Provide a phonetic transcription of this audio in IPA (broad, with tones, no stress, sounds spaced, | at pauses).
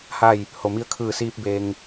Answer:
h a˥˨ j | h o˩ m i˧ ə̯ kʰ ɯː˧˩ s iː˧ p̚ b e˧ ŋ